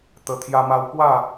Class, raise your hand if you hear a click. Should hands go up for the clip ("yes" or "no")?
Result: no